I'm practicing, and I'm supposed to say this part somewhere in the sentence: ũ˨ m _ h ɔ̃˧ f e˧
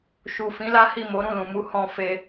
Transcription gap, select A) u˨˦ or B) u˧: A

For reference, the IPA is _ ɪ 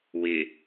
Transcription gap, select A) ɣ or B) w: B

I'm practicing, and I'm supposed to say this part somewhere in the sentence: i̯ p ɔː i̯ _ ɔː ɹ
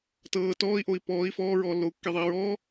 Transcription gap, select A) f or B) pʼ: A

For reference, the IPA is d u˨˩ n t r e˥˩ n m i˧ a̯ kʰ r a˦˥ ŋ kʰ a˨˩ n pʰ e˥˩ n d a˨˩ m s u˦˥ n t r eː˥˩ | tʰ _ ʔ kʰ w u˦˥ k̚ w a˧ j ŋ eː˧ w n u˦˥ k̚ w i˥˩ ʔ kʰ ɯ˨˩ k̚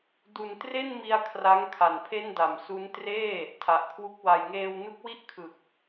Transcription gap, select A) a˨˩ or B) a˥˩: A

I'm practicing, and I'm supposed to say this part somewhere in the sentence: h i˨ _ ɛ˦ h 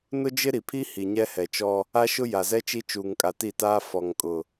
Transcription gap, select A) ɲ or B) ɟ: A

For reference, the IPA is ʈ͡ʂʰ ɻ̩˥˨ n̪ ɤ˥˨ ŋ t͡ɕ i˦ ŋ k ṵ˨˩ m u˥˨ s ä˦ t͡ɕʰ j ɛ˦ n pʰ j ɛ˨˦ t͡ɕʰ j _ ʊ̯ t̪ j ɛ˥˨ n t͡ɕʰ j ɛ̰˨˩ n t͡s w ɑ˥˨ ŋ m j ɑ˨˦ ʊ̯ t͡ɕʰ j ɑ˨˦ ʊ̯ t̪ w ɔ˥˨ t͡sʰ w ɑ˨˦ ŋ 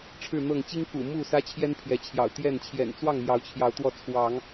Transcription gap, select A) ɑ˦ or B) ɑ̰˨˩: B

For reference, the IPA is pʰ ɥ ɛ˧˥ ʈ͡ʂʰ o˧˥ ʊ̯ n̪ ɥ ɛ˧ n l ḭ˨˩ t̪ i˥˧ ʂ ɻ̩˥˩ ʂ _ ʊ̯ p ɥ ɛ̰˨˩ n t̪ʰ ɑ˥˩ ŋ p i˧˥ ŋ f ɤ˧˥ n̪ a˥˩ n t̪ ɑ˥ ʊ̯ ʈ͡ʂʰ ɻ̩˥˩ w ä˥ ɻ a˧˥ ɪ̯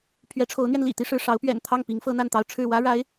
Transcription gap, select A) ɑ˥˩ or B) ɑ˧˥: B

